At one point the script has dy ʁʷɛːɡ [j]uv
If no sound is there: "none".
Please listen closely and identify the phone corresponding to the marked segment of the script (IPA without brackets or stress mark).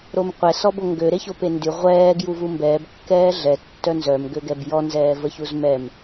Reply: j